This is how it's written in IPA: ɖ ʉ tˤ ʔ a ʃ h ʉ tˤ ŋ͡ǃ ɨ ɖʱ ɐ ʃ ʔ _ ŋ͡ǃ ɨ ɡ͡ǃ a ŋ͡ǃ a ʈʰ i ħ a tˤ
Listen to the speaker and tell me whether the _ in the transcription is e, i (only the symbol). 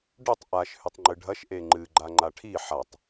e